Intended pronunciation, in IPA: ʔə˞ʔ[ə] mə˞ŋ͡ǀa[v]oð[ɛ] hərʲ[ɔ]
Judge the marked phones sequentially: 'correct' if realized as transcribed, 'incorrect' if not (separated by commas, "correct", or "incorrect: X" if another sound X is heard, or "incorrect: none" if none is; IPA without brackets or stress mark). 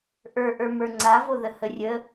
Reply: incorrect: ə˞, correct, incorrect: ə, incorrect: ə